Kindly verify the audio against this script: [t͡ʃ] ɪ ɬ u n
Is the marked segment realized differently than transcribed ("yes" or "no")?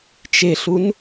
no